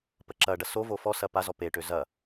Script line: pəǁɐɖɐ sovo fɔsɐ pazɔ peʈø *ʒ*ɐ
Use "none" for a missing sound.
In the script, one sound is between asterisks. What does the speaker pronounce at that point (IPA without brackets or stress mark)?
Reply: z